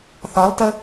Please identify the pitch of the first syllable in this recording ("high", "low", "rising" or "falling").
rising